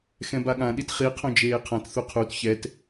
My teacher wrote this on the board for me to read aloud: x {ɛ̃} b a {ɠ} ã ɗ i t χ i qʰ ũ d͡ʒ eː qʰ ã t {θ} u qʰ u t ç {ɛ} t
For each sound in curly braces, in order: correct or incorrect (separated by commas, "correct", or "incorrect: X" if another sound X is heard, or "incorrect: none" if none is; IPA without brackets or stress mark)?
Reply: correct, correct, correct, correct